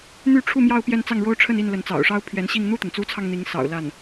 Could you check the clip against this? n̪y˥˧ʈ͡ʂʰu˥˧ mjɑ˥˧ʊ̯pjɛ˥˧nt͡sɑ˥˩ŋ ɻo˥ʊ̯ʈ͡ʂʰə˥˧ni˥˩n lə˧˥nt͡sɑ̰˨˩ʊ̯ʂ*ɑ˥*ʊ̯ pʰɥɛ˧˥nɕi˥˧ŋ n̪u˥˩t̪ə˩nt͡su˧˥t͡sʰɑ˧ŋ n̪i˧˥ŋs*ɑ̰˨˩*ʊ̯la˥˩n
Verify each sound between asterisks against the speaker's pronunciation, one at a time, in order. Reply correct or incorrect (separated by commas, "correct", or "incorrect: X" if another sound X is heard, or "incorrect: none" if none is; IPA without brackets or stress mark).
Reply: correct, correct